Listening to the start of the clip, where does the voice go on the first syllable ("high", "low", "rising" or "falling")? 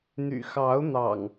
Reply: low